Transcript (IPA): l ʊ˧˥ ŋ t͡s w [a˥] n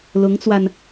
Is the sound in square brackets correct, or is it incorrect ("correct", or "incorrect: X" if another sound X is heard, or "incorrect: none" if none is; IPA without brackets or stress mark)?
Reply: incorrect: a˧